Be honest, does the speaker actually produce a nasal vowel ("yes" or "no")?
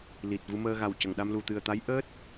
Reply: no